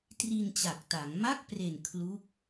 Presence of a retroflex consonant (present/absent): absent